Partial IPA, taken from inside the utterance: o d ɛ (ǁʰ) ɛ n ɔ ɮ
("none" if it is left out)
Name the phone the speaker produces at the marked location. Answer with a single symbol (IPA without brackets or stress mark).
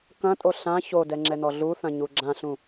ŋ͡ǁ